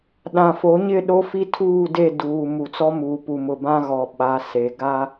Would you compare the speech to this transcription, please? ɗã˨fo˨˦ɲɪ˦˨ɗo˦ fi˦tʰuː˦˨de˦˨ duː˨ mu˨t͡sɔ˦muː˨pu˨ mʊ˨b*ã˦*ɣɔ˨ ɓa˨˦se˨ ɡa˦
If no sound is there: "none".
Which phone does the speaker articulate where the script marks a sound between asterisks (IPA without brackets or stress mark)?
ã˦